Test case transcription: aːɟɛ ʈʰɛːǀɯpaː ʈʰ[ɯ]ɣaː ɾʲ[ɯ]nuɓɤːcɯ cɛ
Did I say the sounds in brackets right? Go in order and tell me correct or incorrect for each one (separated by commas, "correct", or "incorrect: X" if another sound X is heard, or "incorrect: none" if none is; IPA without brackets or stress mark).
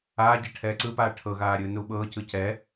incorrect: ɤ, incorrect: ɯː